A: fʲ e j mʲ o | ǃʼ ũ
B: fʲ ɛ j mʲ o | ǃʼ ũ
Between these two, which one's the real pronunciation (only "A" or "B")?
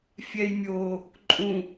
B